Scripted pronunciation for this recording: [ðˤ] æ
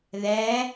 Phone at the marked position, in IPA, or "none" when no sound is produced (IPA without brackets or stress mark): ð